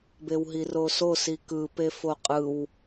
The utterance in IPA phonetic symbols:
bewɦiroso sikɯ pefoqʼɯw

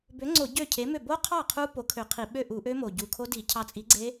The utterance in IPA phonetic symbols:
bø˨˥ŋ͡ǀo˧˩˧ ɟø˥˩cʰe˨˥mø˥˩ bo˦˥qʰɑ˥˩ qʰu˦˥ po˨˥kʰø˧˩˧qʰi˧˩˧ɓø˥˩ ʔu˧˩˧ʔø˦˥mo˨˩ ɟu˨˩kʰo˦˥ di˧˩˧cʰɑ˧t͡sʼi˨˥ ɡ͡ǀe˦˥

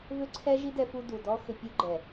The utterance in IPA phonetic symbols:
vʏ˦ǀʰɛ˦ʒi˦ dɛ˧fu˧du˨ dɔ˦xʏ˧pʲu˦ ɡ͡ǃɛ˨

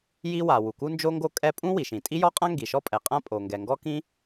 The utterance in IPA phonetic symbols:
ji˥wa˩ wu˩ku˥nd͡ʒo˥ŋɡo˥ kʼɛ˥ pʼũ˥wi˩ʃĩ˩ tʼi˥jɔ˥qʼã˥ ŋɡi˩ʃɔ˥pʼɛ˩qʼã˥ pʼo˩ŋɡɛ˩ ŋɡɔ˥kĩ˥

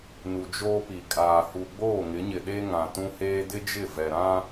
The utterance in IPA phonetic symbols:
nu˨d͡ʒoː˦pi˨ kʼaː˨ hu˨ɡ͡boː˦˨ŋɪ˨˦ɲɪ˨ ɗe˦ŋã˨tũ˦heː˦ dɪ˦d͡ʒɪ˦˨vɛ˨ɾã˦

